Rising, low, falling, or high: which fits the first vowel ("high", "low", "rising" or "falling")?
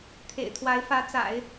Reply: low